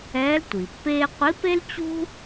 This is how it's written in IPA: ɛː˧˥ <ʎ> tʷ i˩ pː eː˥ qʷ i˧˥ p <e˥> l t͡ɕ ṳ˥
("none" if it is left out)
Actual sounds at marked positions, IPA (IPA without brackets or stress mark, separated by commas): l, e˥